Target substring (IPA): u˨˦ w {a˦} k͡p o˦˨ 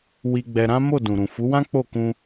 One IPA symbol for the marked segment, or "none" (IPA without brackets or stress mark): ã˦